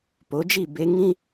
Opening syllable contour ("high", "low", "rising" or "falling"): rising